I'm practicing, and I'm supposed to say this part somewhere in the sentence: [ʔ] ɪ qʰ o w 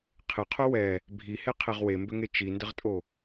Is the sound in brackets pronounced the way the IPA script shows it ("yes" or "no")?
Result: no